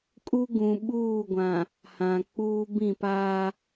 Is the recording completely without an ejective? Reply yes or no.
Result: no